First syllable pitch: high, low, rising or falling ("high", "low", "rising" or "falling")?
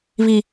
high